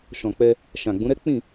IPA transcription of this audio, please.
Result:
ʃ ɔ̃˨ k͡p ɛ˧ | ʃ ã˨ ɡ͡b ũ˨˦ ɾ ɛ˦ k͡p ĩ˦˨

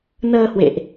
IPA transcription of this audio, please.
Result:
n əː˧ h w ḛ˧˨ ʔ

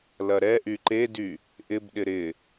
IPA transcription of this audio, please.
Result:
l ɐ ɾ ɛ ʔ y ǃ e d y | ʔ ɪ b ɗ ɪ ɾ ɪ

